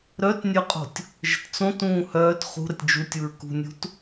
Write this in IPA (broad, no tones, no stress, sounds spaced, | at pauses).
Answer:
ɾ œ t nʲ œ qʼ o̤ tʲ | ʒ ə̤ t t͡s õ t ũː h œː t χ ṳ ɾ ə tʲ d͡ʒ u tʲ u ɹ k ṳ nʲ ṳ t